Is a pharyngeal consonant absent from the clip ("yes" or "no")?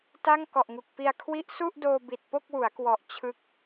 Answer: yes